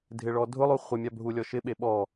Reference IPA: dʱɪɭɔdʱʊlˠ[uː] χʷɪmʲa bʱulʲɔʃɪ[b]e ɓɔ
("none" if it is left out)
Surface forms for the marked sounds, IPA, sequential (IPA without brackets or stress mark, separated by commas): u, ɓ